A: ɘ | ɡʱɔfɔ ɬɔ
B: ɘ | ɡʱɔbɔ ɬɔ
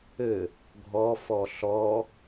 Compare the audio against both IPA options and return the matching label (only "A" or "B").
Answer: A